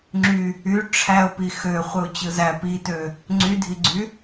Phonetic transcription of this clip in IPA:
ŋ͡ǁ y | y ʈ͡ʂʰ æ ʊ̯ p i x ø χʷ ɯ ʊ̯ t͡ɕ ɯ z æ p i t ø | ŋ͡ǀ y dʱ i ɡ͡ǀ y

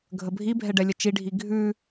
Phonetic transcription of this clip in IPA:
ɡʱ ə bʱ i bʱ ɛ ɖ ɛ lʲ ə t͡ʃ i ɖʱ i ɡʱ ʉ

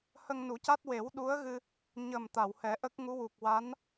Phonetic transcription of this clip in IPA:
h ə˧ ŋ n u˨˩˦ c a˦˥ t̚ w e˨˩˦ w ɗ u˧˥ ə̯ ɣ ɨ˧ | ɲ ə˨˩ m t̪ a˨˩˨ w h ɛ˨˩˦ ʔ ə˦˥ k̚ ŋ u˧˥ w u˨˩ k̚ w a˧˥ n

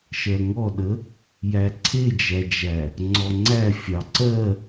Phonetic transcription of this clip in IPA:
ʃ ɜ ŋ ɔ ɗ ə | j æ ǀʰ e d͡ʒ æ d͡ʒ æ | ŋ͡ǀ ɔ ŋ͡ǀ æ fʲ ɑ ǀ ɜ

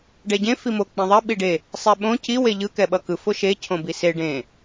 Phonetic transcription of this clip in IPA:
ɖ ɛ ɟ ẽ f i m o k͡p ẽ ðˤ ɛ ɓ i ɖ e | sˤ ɛ ɓ õ c i w e ʎ ɯ k ɛ ɓ ʌ k ɯ f o ʃ e cʰ õ b i s e ɖ ẽ

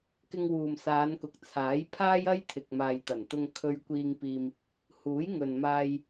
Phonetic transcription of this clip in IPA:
k ɪ˧ ŋ w uː˨ m s aː˨˧ n k ʊ˨˥ k̚ t͡sʰ aː˨˥ j pʰ aː˥ j ɐ˥ j t̪ʰ ɪ˨ k̚ m aː˨ j t̪ ɐ˨˩ n t̪ ʊ˧ ŋ kʰ ɵ˧ ɥ kʷ iː˧ ŋ p iː˧ m | h uː˨˥ j ŋ ɵ˨ n m aː˧ j

